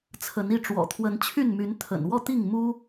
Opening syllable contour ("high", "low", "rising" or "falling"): rising